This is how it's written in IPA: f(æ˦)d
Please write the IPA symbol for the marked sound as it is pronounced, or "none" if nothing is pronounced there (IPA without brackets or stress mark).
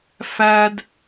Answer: æ˦